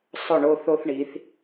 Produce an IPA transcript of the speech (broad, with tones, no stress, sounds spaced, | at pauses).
sˤ ʊ˦˨ ɳ o˦ θ o˦ θ ɳ i˨˦ θ